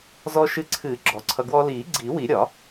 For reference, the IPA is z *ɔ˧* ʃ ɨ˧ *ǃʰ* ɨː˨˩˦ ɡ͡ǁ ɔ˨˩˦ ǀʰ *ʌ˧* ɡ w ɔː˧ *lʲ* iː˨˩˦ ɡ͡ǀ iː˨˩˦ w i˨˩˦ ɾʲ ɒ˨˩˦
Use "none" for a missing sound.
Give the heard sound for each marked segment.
ɔ˧, ǀʰ, ʌ˧, l

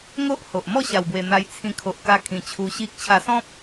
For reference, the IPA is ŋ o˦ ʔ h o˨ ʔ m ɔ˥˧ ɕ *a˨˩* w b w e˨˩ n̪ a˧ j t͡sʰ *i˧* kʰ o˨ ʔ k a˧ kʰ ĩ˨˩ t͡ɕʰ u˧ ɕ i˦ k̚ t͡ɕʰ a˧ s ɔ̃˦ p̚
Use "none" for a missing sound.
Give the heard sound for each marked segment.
a˨˩, ĩ˧

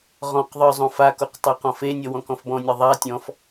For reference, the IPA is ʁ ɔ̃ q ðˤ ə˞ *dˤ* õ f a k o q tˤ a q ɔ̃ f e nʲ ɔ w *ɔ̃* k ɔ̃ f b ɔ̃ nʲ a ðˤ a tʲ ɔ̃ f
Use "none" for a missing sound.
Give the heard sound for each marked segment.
zˤ, ɔ̃

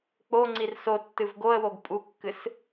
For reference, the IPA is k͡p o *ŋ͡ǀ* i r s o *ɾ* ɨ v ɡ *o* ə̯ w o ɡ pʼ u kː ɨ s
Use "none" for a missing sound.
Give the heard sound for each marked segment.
ŋ͡ǀ, tː, o

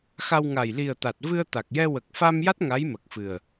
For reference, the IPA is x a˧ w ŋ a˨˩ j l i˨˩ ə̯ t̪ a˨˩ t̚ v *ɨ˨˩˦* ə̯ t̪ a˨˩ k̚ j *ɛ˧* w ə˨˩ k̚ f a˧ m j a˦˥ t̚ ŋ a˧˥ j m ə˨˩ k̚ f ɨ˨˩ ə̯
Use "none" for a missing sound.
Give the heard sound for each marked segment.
ɨ˧, ɛ˧

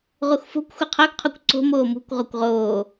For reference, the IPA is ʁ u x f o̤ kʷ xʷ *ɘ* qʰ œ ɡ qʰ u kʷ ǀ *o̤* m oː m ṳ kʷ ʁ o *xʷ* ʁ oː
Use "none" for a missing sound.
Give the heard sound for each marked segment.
ɘ, o̤, kʷ

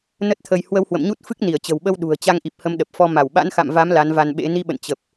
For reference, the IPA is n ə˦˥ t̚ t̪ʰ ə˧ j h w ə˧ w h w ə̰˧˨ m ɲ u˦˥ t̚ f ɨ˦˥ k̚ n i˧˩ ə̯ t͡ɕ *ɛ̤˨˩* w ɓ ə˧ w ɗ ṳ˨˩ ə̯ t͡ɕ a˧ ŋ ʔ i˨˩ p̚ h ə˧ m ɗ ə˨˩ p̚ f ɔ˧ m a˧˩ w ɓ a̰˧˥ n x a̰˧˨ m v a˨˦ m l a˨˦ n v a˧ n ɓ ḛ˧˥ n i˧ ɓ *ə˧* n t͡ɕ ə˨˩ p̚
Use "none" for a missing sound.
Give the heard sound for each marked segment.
ə̤˨˩, ə̰˧˨

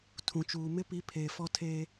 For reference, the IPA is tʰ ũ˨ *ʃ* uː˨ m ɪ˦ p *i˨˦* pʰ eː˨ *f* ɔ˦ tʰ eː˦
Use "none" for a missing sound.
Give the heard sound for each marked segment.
t͡ʃ, i˨˦, f

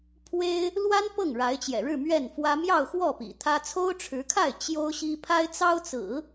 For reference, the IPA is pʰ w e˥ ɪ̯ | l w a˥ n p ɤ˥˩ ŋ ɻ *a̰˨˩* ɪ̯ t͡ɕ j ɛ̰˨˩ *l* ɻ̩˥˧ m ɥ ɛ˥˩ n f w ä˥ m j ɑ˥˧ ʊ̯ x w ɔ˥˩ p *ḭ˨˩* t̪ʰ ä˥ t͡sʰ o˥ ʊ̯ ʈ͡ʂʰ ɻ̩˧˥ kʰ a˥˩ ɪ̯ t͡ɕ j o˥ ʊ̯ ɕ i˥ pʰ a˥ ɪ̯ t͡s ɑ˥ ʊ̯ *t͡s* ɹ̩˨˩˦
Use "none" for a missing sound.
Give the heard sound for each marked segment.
a˧˥, ɻ, ḭ˨˩, t͡s

